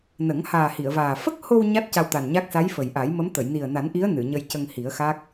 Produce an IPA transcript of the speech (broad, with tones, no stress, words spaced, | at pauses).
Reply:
nə˨˩˦ŋhaː˨˩hi˨˩˨ə̯vaː˨˩ fə˦˥k̚ho˧w ɲa˦˥t̚ ca˧wt̪a˨˩nɲa˦˥k̚ sa˧˥jfə˨˩jʔa˨˩˦jmə˧˥m t̪ə˨˩˨j ni˨˩ə̯ na˨˩˦nʔi˧˥ə̯ nɨ˨˩˨ɲə˧jcə˧ŋ hi˨˩˦ə̯xa˦˥k̚